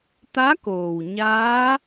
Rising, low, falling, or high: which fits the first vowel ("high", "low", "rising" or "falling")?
rising